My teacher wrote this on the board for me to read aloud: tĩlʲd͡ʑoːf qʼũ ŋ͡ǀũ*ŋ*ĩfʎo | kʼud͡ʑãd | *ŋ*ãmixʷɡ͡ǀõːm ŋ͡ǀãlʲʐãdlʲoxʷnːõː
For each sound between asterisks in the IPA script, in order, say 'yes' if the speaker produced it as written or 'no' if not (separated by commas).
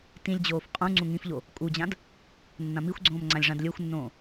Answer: yes, no